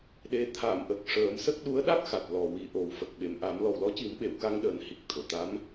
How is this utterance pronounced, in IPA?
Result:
ɗe˨˩ t̪ʰa˨˩˨m ʔə˨˩k̚ ʂəː˨˩˦msə˦˥k̚ ɗu˧˥ə̯ɗa˦˥k̚xa˨˩t̚ lɔ˨˩wi˨˩ ʔo˨˩˦wfə˨˩k̚ ɓe˨˩mʔa˨˩˦m lɔ˨˩wlɔ˧˥ci˨˩˦mɓe˨˩˨w ka˧ŋɗəː˨˩nhi˨˩k̚ t̪ʰo˨˩˨ t̪a˧˥m

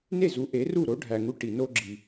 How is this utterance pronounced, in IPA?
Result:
ne˥˩zu˩˥ ʔe˩˥ru˥˩ ɾo˩˥ɖʱæ˩ŋu˧ ʈi˩no˧ɡ͡ǁi˩

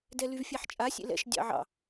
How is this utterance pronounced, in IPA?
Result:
dɛlyvfʲæħt͡ʃʼa sʲḛlɛ̰ʃ dʲɑ̰ʕɑ̰

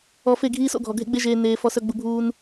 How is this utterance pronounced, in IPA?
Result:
ɔ˧fe˦˨ɡʱiː˦s o̰˧ɡʱɔ˨ ɡʱḛ˦ɡ͡be˦ʒeː˧ neː˧fɔ˧s œ˧ ɡ͡bu˧bʱuː˦n

